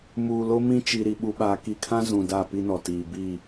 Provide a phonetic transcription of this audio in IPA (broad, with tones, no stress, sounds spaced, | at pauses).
m uː˨ l o˦ m ĩ˦ t͡ʃ i˨ ɾ i˨ ɓ u˨ ɓ aː˨ k i˨ kʰ ã˦ z ũ˨ d a˦˨ p i˦ n ɔ˨ t iː˨ b iː˦˨